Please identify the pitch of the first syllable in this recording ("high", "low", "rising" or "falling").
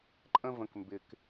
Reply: high